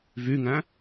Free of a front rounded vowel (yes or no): no